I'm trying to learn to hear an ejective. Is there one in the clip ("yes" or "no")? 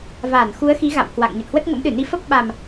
no